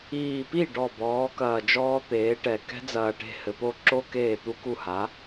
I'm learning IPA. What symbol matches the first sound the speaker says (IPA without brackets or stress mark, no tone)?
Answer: iː